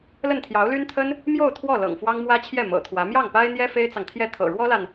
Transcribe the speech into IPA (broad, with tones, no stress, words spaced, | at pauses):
lə˥˩nt̪ʰjɑ˧˥ʊ̯ly˥nt̪ʰə˥n | mjo˥˧ʊ̯ t̪ʰwɔ˥˩lɤ̰˨˩ŋ fwɑ˥ŋmwä˥t͡ɕʰjɛ˥˩ mɤ̰˨˩t̪ʰwä˧˥ mjɑ˥˩ŋpa˥ɪ̯n̪jɛ˥ fe˥ɪ̯t͡sɑ˨ŋt̪ʰjɛ˥˩ t̪ʰɤ̰˨˩ɻwɔ˥la˨n